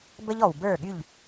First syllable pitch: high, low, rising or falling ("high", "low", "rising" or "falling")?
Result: high